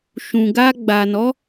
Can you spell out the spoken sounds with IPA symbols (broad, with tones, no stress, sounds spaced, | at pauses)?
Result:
ʃ ũ˨ ɡ a˧ ɡ͡b a˨ n ɔ˨˦